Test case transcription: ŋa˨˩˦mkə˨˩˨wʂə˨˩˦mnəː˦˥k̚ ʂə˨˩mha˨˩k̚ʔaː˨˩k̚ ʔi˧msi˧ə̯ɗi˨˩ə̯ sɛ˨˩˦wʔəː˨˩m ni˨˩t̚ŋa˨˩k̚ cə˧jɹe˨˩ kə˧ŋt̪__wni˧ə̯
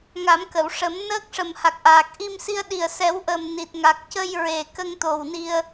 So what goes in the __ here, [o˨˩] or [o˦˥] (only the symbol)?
o˨˩